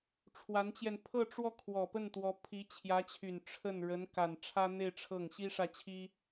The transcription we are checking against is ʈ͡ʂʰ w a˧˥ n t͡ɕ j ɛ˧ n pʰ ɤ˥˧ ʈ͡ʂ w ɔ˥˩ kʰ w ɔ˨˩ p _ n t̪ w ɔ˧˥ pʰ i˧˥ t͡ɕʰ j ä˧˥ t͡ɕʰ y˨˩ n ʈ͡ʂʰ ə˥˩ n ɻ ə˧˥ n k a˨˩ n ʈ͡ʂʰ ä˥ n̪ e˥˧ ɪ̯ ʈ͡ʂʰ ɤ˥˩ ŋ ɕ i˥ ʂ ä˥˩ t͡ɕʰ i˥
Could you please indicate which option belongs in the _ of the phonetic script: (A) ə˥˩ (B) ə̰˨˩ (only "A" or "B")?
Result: A